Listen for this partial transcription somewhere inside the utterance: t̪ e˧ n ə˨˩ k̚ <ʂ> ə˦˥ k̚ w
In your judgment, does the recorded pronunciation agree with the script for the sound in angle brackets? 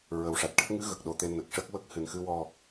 yes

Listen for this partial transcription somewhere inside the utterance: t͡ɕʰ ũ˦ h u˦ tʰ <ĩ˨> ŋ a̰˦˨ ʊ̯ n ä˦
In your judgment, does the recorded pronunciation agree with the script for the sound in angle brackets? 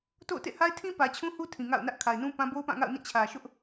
yes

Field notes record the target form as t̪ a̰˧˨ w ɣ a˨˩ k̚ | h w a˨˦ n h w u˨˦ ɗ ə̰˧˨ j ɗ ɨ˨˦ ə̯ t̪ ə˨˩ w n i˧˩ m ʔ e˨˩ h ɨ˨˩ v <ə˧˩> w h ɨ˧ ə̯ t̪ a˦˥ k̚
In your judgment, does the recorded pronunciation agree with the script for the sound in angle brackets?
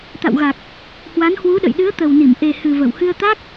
yes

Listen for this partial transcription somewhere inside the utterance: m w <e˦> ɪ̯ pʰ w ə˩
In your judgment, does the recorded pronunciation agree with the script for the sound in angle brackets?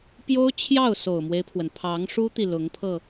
yes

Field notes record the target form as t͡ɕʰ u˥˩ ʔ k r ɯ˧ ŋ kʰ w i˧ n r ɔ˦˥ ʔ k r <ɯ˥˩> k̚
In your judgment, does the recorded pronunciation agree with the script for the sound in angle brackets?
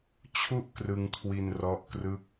yes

